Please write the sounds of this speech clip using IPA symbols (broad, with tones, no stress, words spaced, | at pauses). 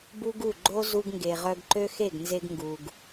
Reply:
bu˦ɡu˦˨ ɡ͡ǃo˦ zu˧ɡŋɡe˨ʁœ˧ɡ ǃø˦xe˦˨ɡnze˧ɡŋɡu˨ɡ